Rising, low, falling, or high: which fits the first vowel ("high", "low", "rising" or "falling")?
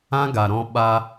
high